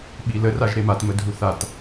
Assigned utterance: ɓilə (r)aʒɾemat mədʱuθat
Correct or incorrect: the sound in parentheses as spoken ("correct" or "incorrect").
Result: correct